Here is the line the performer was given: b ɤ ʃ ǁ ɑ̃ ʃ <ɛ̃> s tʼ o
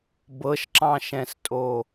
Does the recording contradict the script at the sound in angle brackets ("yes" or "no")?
no